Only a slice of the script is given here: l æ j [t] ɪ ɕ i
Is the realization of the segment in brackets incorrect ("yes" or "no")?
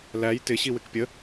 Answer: no